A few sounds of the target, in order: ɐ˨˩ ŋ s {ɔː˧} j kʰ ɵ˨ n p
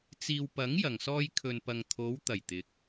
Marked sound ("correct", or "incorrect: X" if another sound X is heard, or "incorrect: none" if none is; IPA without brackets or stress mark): correct